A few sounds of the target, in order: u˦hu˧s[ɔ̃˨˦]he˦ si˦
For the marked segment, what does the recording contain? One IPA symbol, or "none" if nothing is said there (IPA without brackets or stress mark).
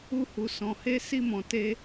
ɔ̃˧